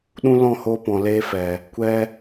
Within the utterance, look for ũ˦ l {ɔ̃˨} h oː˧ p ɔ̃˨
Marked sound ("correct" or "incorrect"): incorrect